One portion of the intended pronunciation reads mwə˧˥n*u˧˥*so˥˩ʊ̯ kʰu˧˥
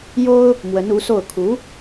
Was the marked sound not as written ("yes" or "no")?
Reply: no